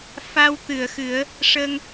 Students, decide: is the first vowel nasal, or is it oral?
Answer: oral